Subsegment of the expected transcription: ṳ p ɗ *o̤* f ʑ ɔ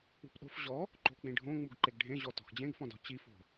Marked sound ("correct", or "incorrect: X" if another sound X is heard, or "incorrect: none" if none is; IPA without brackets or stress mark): correct